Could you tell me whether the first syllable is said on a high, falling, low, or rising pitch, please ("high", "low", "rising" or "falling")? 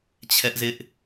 high